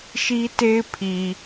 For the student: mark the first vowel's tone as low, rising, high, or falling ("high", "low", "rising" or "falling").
high